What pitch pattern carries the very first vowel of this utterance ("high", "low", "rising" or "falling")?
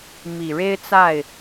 low